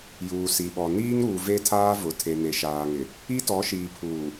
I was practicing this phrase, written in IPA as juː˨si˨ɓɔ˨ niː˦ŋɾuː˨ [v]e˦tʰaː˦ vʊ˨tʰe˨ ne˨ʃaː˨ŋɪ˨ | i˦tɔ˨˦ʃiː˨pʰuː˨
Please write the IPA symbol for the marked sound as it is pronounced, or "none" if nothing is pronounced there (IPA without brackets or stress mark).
v